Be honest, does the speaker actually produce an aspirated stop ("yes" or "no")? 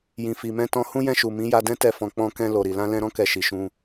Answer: no